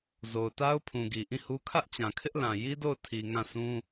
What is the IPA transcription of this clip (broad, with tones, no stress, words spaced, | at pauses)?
zo˨ʊ̯ta˦ʊ̯pʰũ˨ɡi˨ ʔĩ˦˨hu˦ kʰä˦ʔt͡ɕã˨ kʰɪ˦ʔlã˨ ji˦do˦˨ʊ̯tʰi˨ ŋã˦˨sʰũ˦